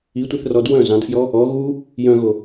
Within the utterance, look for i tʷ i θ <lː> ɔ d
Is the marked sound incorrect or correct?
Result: incorrect